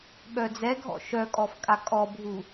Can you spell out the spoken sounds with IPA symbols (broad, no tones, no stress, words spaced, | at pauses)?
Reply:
ɓœd͡zɛɡʱɔ̰ ʃœkʼɔf kʼakʼɔbʱu